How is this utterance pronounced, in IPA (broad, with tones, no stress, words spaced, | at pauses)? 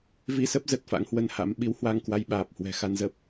vi˧sə˦˥p̚ zə˨˩t̚fa̰˧˥ŋhwə˧nha̰˧˥m ɓi˨˦whwa˧ŋkwa˧j ɓaː˨˩p̚hwɛ̤˨˩ xa˧nzə˦˥p̚